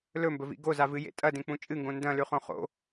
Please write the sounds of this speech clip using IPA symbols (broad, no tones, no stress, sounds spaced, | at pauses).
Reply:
l ɵ m b ɵ v ḭ ɡ o z a v ɨ j ḛ tʼ ɐ d ẽ k͡p ũ t͡ʃʼ ɨ ŋ ɡ õ n d ɐ̃ l ʉ χ õ χ o̰